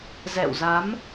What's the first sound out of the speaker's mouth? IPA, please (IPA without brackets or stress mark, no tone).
z